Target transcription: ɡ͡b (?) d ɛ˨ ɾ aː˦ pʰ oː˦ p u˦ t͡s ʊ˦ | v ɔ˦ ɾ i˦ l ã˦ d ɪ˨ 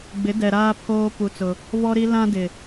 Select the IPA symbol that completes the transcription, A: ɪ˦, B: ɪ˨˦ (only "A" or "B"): B